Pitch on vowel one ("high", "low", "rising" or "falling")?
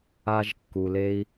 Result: high